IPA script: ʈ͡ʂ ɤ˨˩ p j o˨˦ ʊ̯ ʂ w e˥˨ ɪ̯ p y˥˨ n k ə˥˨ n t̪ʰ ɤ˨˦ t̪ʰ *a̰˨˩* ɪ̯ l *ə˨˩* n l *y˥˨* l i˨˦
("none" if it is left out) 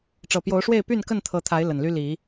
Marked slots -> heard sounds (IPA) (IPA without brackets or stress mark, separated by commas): a˨˦, ə˨˩, y˦